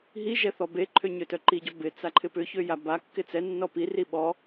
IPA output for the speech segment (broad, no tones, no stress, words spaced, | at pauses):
ɦi ʒɛθɔbeǃʰø ɲøtœǃiɟɔ bɪ t͡saǃʰɪpʏçø jabakːɪ t͡sɛnːɔ piri ɓɔ